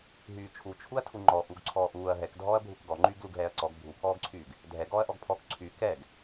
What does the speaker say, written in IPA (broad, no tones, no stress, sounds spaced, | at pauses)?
ɦ yː t͡ʃʰ u t͡ʃʰ u ɐ̯ tʰ u ŋ͡ǃ ɔ ʔ u ɡ ǀʰ ɔː ʔ uː ɐ̯ ɦ ɛ k dʱ ɔː ɐ̯ bʱ u k ɡ ɔ ŋ͡ǃ yː ɡ l u ɡ ɦ ɛː ɐ̯ ǀ ɔ ɡ bʱ u pʰ ɔː ɡ ǀʰ yː ɡ | dʱ ɛ ɡ ɔː ɐ̯ ʔ ɔ ɡ pʰ ɔ k ǀʰ y k ɛ ɡ